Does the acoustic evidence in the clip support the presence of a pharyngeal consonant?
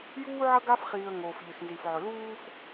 yes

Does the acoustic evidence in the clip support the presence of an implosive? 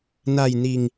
no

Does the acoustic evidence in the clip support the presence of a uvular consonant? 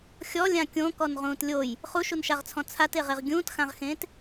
yes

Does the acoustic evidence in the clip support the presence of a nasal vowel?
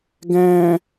yes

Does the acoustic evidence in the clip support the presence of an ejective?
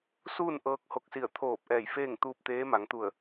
no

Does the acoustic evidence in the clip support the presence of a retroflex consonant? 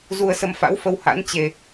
no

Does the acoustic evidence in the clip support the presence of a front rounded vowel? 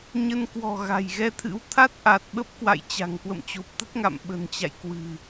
no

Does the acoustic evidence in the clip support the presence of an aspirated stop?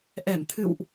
yes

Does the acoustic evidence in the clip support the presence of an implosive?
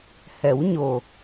no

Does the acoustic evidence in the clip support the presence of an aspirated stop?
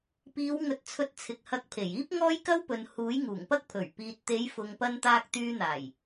yes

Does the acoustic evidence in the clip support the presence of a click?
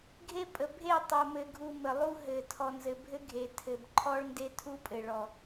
yes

